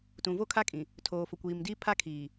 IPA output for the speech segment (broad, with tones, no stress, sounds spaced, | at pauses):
t ũ˨ v o˦ kʰ a˦ kʼ ĩ˨ | tʰ oː˨ f ʊ˨ kʷ iː˨ m d iː˦ pʰ a˦ kʰ iː˨